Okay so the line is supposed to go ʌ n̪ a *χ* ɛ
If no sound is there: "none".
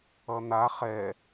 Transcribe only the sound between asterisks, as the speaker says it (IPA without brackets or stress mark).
χ